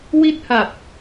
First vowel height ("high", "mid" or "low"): high